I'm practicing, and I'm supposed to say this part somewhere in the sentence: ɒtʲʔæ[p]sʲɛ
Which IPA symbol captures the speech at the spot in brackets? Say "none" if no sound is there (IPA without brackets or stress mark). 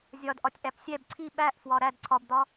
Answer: p